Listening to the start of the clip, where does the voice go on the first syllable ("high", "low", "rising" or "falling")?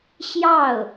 falling